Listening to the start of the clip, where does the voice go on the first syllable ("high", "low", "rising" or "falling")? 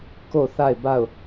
falling